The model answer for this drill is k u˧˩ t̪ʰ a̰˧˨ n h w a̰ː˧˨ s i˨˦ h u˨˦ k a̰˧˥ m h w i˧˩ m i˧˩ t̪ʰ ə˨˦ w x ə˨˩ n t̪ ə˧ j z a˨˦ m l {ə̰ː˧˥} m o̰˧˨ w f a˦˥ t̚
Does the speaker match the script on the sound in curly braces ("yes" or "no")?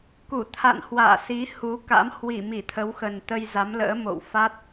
yes